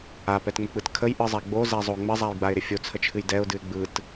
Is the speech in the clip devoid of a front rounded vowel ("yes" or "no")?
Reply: yes